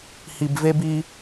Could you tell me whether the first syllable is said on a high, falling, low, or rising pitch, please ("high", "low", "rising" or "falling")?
low